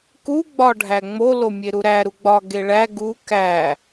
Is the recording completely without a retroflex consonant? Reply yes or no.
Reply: no